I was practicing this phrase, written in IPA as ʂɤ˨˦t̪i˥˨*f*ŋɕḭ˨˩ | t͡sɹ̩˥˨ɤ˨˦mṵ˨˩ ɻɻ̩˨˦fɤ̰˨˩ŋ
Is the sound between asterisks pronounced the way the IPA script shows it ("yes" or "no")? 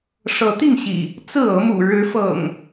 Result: no